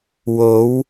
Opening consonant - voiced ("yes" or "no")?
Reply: yes